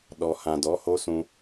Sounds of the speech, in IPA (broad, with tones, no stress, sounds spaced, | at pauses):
ɗ ɔ˨ h ã˨ d ɔ˨˦ h o˦ s ũ˧